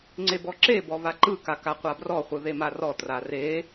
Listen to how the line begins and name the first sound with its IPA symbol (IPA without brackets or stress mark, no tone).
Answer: ŋ͡ǀ